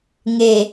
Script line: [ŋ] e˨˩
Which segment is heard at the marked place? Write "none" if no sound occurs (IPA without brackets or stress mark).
ŋ